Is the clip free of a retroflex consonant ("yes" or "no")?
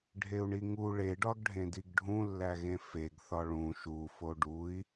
no